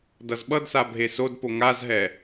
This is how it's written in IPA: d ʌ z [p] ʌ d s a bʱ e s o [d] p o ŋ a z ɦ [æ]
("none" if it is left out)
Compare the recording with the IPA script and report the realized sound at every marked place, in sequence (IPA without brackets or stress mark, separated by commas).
ɓ, d, ɛ